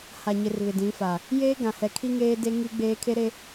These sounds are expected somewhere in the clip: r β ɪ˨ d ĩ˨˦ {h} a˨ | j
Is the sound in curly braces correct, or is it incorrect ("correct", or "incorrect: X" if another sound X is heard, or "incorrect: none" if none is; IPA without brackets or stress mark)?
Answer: incorrect: f